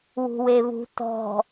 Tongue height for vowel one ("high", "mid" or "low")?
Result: high